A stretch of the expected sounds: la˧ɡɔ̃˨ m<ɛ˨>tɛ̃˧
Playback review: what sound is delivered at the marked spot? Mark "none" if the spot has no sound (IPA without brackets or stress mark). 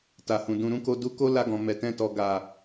ɛ˨